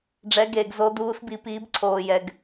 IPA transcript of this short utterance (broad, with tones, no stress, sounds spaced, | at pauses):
ɖ͡ʐ ɛ˨˦ ɡ eː˨ ɡ z o˨˦ d uː˨˦ s b i˨ p iː˨˦ b ǀʰ oː˨ j ɛ˨ ɡ